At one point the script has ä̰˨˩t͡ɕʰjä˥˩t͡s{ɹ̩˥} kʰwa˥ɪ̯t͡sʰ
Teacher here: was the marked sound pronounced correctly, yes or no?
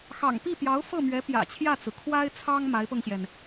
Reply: no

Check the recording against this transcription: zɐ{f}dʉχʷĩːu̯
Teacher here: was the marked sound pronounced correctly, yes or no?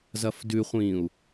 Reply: yes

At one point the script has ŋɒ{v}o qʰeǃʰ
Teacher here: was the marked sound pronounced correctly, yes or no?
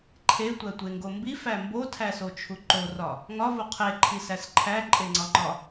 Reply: yes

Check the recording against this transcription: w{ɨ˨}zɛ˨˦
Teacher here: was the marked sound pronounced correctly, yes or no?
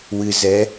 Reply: yes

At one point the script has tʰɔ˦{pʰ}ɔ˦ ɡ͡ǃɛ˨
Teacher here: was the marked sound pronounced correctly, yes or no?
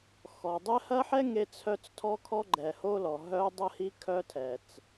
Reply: no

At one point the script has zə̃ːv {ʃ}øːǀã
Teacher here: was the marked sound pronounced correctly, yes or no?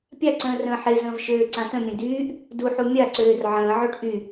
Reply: yes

